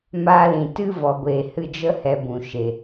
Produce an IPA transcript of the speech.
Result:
m aː˦ l ĩ˨ t ɨ˦ v ɔ˨ ɡʷ eː˨ h ɨ˧ d͡ʒ ə˦ h ɛ˧ b ũ˨ ʃ e˨

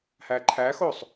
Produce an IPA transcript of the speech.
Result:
h æ ǃʰ æ x o sˤ

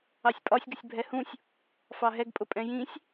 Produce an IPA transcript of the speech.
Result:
ɑ sʲ pʼ ɒ sʲ ɡ ə sʲ bʱ ɛ h ũ sʲ | f ɑ ɦ ɛ ɡ pʼ ʊ pʼ ɛ̃ j ĩ sʲ

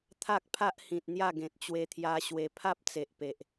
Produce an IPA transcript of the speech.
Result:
t̪ʰ a˦ k̚ pʰ a˦ ʔ h ĩ˨ t̚ n̪ j a˥˧ ɡ ẽ˨ t̚ t͡ɕ w e˧ t̪ʰ j a˧ ɕ w e˧ pʰ a˦ p̚ t͡s e˨ ʔ p e˨ ʔ

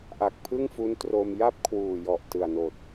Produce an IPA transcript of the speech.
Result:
ʔ a˨˩ k̚ pʰ ɯ˥˩ ŋ f u˦˥ n t r o˧ m j a˥˩ p̚ kʰ w uː˨˩ j ɔ˨˩ ʔ t ɯ˨˩ a̯ n oː˨˩ t̚

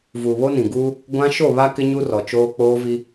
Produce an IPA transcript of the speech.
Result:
v uː˨ β o˦ n ĩ˨ ɡ uː˦ | ɡʷ ã˦ ʃ o˦˨ β a˦ k ɪ˦ ɲ u˦ r ɔ˨ t͡ʃ oː˦ k͡p oː˦ v i˦

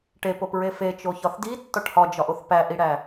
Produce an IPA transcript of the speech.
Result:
ʈ e p o p ɹ e f e t͡ʃ o ç ɒ θ d i tː ɒ ʈ h ɒ d͡ʒ ɒ ʔ o θ p æ ʔ i ɽ æ

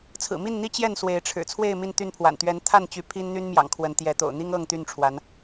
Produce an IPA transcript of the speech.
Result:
t͡sʰ ɹ̩˨˩ m i˥˨ n n̪ i˦ t͡ɕ j ɛ˥˨ n s w e˨˦ ɪ̯ ʈ͡ʂʰ ɻ̩˨˩ t͡sʰ w e˥˨ ɪ̯ m i˥˨ n t̪ y˥˨ n pʰ w a̰˨˩ n t̪ ɥ ɛ˨˦ n t̪ʰ a˥˨ n t͡ɕ y˨˦ pʰ i˦ n n̪ y˦ n m j ɑ̰˨˩ ŋ kʰ w ə˨˦ n t̪ j ɛ˨˦ t̪ o̰˨˩ ʊ̯ n̪ i˦ ŋ ɤ˥˨ ŋ t̪ y˥˨ n ʈ͡ʂʰ w a˨˦ n

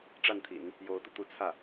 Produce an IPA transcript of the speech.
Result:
ʈ͡ʂ a˥˩ n t̪ʰ ḭ˨˩˦ n | j o˧˥ ʊ̯ t̪ u˧ t̪ u˧˥ t͡sʰ ä˥˩

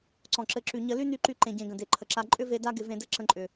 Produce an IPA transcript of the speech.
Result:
ǀ ɔ̃˨ ǁ ɘ˧ ǁ y˨ ɲ ə˧ l y˦ n y˧ ǃ y˧ ǃ ẽ˨ ɟ ẽ˨ ɡ ə̃˨ d e˨ ǃʰ ə˨ ǁ a˧ ǃʼ ʏ˦ v e˧ d a˦ ɡ ɪ˧ v ẽ˧ d ɘ˦ ǁ ə̃˧ ǃʼ ʏ˨

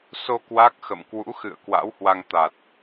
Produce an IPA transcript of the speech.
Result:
s o˧ k w a˦˥ k̚ x ə̰˧˨ m k w ṵ˧˥ x ɨ̰˧˨ ə̯ k w a̰˧˥ w h w a˧ ŋ t̪ a˨˩ t̚

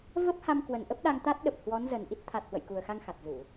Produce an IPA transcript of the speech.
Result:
v ə˦˥ p̚ h a˧ m k w ə˨˩ n ʔ ə˦˥ p̚ ɗ a˧ ŋ t̪ a˦˥ t̚ ɗ ə˨˩ p̚ h w ɔ˨˦ n z ə˨˩ n ʔ i˦˥ t̚ t̪ʰ a˨˩ t̚ h w ə̰˧˨ j k u˨˩ ə̯ x a˧ ŋ x a˨˩ t̚ z u˧˩˨

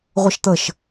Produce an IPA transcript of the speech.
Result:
ʁʷ ə ʃ t̪ ə ʃ

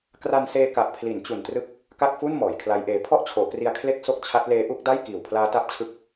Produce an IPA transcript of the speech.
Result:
k r a˧ n s eː˧ k a˨˩ ʔ pʰ l i˩˦ n t͡ɕ u˨˩ n t r ɯ˦˥ k̚ | k a˥˩ k̚ f u˥˩ n m ɔː˩˦ j kʰ l a˦˥ j ʔ eː˧ pʰ ɔ˥˩ ʔ t͡ɕʰ oː˩˦ k r i˧ a̯ kʰ l e˦˥ k̚ s o˦˥ k̚ t͡ɕʰ a˦˥ t̚ l eː˦˥ ʔ u˦˥ k̚ d a˥˩ j k iː˨˩ w pʰ l aː˦˥ t a˦˥ p̚ t͡ɕʰ ɯ˦˥ k̚

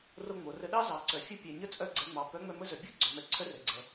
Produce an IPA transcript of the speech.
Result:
r o˧ ŋ͡m o˩ r ə˧ ɗ ɑ˥ z ɑ˩ ǀ œ˩ fʲ ə˧˥ pʲ ɛ˩ ɲ ə˥ t͡sʼ œ˧ ɡ͡ǀ ɛ˩˧ ŋ͡m ɑ˩ p œ˧˥ ŋ͡m œ˧ m ə˥ z œ˩ bʲ o˥ ɡ͡ǀ œ˩˧ m ɛ˩˧ ǀʰ œ˥ r ɛ˩ ɡ͡ǀ ɛ˩

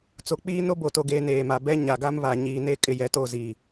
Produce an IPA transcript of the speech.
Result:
t͡s o˨ k͡p iː˦ n o˦ b o˨ t o˨ ɡ eː˨ n eː˨ m a˨ b ɛ˦ ɲ a˨ ɡ a˦ m β a˨ ɲ iː˨ n e˦˨ kʼ ɪ˦˨ j ɛ˨ t o˦˨ z i˨

